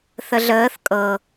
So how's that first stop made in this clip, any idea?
ejective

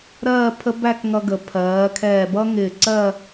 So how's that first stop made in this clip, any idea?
aspirated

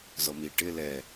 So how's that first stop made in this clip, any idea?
plain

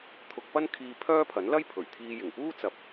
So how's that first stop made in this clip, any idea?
aspirated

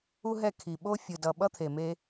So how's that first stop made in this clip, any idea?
aspirated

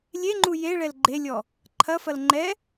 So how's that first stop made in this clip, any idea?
click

